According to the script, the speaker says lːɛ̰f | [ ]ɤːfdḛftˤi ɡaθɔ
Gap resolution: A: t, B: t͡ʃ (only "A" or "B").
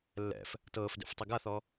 A